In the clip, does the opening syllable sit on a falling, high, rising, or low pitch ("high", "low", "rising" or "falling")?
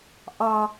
low